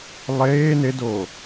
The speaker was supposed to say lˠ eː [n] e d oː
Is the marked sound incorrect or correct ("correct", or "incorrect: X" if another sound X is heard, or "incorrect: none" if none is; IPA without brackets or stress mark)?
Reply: correct